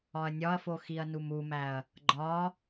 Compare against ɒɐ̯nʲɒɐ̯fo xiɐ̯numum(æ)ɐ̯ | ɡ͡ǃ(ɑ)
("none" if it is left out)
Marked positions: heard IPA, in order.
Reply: æ, ɒ

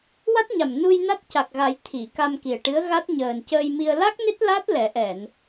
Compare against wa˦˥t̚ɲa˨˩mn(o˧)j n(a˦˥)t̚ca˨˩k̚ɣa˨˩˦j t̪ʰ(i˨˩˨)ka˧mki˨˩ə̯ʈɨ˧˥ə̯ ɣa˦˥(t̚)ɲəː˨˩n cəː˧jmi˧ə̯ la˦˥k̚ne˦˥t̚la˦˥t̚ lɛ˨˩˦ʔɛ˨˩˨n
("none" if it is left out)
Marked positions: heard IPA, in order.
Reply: u˧, a˦˥, i˨˩˨, t̚

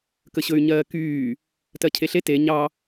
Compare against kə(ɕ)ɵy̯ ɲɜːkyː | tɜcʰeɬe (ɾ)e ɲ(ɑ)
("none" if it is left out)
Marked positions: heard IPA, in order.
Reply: ɕ, t, ɑ

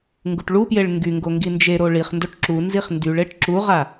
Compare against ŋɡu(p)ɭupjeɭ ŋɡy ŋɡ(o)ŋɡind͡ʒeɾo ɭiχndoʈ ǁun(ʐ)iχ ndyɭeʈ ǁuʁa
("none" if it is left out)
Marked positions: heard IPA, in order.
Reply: ʈ, o, z

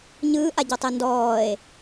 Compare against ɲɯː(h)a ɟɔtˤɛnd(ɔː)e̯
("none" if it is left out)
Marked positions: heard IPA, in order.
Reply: ʔ, ɔː

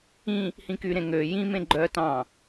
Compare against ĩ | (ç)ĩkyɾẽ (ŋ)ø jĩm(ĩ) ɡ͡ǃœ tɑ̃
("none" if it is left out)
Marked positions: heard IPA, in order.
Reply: h, ŋ, ẽ

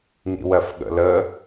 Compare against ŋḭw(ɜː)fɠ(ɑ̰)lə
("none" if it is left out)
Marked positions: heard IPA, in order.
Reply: ɜ, ə̰

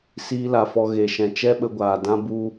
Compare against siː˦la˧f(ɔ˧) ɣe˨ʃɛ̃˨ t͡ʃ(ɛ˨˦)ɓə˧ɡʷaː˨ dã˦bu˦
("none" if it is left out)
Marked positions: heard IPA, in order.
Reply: ɔ˧, ɛ˦

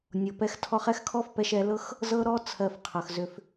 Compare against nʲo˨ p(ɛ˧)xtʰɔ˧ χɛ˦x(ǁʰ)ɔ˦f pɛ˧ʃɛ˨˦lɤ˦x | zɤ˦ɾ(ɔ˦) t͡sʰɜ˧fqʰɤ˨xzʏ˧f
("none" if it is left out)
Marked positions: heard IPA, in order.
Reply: ɛ˧, kʰ, ɔ˦

